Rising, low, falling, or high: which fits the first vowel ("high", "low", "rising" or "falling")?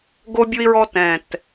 high